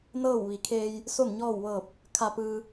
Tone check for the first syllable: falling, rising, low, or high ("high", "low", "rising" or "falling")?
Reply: falling